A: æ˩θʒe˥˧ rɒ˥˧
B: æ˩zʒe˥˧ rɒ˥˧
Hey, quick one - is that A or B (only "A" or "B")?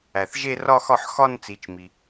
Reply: A